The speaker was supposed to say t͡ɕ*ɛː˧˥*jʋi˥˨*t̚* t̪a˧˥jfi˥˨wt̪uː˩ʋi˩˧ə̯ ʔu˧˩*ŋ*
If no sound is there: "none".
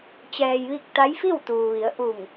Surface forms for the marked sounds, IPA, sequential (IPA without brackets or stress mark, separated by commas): ɛː˧, k̚, ŋ